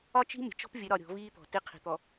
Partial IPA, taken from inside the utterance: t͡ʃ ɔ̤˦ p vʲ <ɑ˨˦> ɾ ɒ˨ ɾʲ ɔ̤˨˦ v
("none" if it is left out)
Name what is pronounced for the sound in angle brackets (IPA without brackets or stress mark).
ə˨˦